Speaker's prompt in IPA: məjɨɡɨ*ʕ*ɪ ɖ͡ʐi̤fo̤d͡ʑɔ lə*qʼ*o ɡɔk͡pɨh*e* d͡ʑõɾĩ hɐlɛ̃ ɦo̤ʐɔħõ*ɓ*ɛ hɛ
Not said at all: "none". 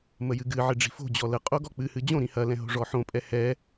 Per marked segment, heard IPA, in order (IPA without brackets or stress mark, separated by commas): ʕ, qʼ, ɨ, pʼ